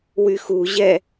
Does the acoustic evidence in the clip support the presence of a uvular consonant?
no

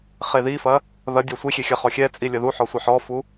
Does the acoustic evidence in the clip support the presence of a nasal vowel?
no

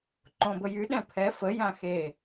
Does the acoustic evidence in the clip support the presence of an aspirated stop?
yes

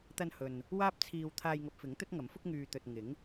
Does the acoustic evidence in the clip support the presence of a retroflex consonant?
no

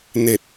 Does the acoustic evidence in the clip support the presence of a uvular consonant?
no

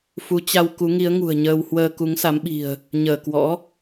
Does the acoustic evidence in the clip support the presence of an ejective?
no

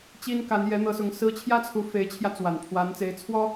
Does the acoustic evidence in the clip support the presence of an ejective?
no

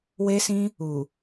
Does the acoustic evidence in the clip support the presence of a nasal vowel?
yes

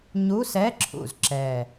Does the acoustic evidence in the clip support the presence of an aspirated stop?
yes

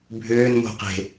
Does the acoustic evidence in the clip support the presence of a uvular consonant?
yes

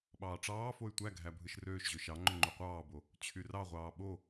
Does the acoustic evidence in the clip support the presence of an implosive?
yes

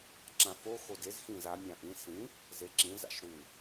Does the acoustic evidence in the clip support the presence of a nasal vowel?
yes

